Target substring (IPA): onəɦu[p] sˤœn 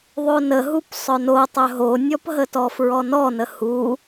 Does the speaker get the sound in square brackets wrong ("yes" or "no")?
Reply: no